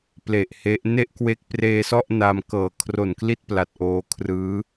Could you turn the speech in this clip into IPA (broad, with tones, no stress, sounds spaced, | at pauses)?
p l e˨˩ ʔ h e˦˥ ʔ n e˥˩ ʔ k w e˦˥ k̚ p r eː˧ s ɔ˥˩ ʔ n a˧ m k ɤː˨˩ kʰ r o˨˩ n k l i˥˩ t̚ p l a˨˩ t̚ ʔ oː˧ kʰ r ɯː˦˥